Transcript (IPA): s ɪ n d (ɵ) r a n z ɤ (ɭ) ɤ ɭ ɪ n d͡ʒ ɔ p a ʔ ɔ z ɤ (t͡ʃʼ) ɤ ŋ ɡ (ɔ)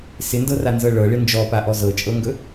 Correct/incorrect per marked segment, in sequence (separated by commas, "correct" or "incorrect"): incorrect, correct, correct, incorrect